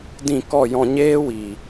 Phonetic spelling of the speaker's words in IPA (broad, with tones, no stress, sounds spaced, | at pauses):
d ĩ˦˨ k ɔ˦˨ j ɔ̃˧ ɲ eː˦ w iː˨